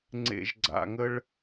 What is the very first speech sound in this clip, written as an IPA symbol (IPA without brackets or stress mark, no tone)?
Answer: ŋ͡ǀ